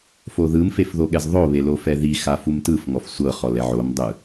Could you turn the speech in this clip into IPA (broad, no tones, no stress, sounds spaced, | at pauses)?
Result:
f o ð ɯ m f e f ð o ɠ ɛ z ðˤ o β e l o f ɛ ð i x a f u m t ɯ f ŋ ɔ f sʷ ɤ χ ɔ l ɛ ʕ o m dˤ ɯ